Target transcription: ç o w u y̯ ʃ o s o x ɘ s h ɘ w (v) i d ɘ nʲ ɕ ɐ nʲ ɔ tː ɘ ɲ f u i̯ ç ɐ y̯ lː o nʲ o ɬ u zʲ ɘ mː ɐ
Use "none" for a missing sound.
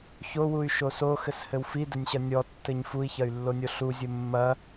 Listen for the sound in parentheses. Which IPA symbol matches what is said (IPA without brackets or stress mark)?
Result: f